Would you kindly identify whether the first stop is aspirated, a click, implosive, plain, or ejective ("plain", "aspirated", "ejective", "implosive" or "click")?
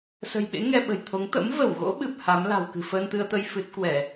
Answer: implosive